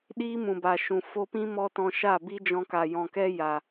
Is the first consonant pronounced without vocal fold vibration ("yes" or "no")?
no